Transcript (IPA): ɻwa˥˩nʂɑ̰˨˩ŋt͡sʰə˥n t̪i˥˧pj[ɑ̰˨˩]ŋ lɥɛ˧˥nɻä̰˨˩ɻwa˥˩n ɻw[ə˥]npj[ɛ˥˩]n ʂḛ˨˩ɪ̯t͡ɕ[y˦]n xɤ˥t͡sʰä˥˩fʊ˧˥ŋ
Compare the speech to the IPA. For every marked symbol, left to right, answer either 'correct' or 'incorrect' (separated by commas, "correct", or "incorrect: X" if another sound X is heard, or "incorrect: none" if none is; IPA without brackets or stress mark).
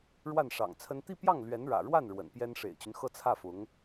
incorrect: ɑ˥˩, incorrect: ə̰˨˩, incorrect: ɛ˥, correct